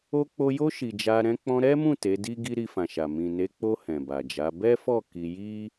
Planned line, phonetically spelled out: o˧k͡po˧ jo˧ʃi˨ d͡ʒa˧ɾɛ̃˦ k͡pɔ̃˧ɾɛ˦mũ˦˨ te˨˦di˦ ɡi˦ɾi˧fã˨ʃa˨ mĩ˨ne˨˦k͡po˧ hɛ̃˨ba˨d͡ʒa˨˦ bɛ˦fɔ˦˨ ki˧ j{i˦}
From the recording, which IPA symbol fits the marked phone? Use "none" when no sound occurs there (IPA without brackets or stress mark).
i˦